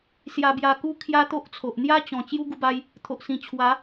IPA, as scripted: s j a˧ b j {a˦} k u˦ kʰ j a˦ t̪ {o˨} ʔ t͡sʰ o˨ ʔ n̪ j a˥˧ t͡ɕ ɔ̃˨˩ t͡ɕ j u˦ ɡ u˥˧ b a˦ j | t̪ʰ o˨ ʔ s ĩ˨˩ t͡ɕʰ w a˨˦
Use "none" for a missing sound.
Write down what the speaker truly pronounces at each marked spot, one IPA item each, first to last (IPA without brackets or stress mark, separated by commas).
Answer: a˧, o˦